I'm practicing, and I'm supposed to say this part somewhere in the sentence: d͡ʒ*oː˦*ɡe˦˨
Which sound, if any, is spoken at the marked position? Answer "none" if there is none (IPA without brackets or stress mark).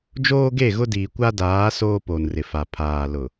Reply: oː˦